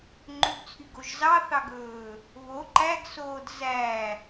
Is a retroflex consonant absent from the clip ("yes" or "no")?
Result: yes